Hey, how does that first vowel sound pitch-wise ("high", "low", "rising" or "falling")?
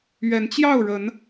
rising